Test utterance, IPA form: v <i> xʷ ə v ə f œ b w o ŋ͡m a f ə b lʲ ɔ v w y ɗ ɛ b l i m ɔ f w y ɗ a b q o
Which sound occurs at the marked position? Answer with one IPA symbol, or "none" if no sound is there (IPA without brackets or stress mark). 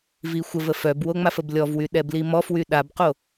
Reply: i